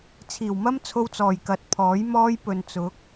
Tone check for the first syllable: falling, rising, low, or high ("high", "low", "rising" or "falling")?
low